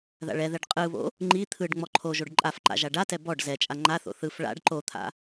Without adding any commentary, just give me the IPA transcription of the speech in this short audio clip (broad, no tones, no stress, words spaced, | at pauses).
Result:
ða̰ɭɛðɛɖ qʼɯβo̰ | ŋ͡ǃi t̪ʰɯɖ ŋ͡mɔǃʰoʒoɖ ǃʼafǃa̰ ʒaɖatɛ bɔɖ zɛt͡ʃʼa ŋ͡ǃaθo̰ θɯf ɭa̰ɖ ǃot̪ʰa̰